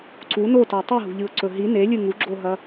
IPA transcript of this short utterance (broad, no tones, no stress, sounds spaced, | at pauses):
ǀ u n o t a tˤ i ɦ ṳ ʎ ɨ ʊ̯ ǀ ɵ ɦ i n e lʲ ɨ ŋ u ɡ͡ǁ o ɦ ɐ